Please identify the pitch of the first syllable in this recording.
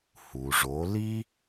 low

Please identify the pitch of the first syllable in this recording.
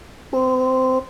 high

